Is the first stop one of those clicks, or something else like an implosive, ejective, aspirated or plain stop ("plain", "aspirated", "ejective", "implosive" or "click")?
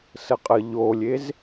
ejective